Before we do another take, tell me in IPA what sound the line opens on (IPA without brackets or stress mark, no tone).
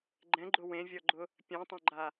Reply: ɡ͡ǃ